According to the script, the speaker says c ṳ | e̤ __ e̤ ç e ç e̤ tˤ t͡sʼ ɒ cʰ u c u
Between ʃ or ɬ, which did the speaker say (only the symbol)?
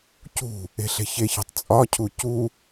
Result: ɬ